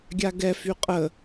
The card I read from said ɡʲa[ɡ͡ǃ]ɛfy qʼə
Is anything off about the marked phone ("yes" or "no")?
yes